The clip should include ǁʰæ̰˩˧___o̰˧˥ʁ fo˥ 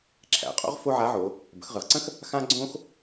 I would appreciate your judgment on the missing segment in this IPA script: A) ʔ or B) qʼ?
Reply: B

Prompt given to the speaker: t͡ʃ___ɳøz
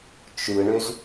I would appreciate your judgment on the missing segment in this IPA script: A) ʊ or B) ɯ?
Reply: B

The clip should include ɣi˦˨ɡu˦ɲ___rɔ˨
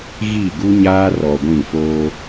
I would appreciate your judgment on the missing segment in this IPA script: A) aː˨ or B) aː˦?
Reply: B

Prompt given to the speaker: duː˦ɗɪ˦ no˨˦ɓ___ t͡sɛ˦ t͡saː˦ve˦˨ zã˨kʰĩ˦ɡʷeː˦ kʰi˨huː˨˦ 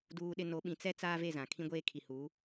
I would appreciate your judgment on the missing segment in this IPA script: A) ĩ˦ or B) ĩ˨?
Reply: B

